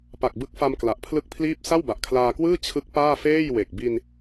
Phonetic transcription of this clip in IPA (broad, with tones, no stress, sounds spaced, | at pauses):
p a˨˩ k̚ b ɯ˦˥ k̚ f a˧ m k l a˨˩ ʔ pʰ l ɯ˥˩ k̚ pʰ l iː˥˩ p̚ s a˥˩ w b a˨˩ ʔ kʰ l aː˧ k w ɯː˥˩ t͡ɕʰ ɯ˦˥ k̚ p aː˥˩ f eː˥˩ j w e˨˩ k̚ b i˧ n